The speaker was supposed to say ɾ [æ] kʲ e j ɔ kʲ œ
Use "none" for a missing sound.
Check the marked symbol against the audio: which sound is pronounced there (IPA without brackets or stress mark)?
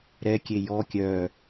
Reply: ɛ